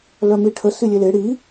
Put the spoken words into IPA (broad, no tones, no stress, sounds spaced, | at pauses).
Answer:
l œ m i ʈʰ ə s i lʲ e l e ɽ i